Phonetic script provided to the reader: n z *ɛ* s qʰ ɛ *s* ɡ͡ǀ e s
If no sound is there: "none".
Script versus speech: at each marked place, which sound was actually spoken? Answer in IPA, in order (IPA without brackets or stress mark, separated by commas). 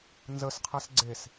ə, s